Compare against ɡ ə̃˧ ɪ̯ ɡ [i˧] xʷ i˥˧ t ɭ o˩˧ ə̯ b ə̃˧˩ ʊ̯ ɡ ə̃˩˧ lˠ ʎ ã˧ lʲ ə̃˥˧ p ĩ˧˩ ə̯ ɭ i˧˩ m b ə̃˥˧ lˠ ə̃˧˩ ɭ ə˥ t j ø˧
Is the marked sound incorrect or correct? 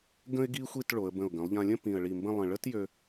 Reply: correct